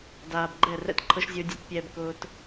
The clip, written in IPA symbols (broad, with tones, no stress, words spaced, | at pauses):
daː˨bɡ͡ǃɛ˦˨ rɛ̰˦tǃʰɤ˦ʃzʲʊː˦dʲḛ˦t pʲɛː˧b kʊː˧t